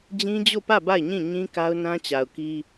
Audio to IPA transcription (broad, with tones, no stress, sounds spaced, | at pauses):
d͡ʑ ĩ˦ d͡ʑ o˦˨ p ä˦˨ b a˦˨ ɪ̯ ɲ ĩ˦˨ ɲ ĩ˦ k a˦ ʊ̯ n ã˦ t͡ɕ a˨ ʊ̯ k i˦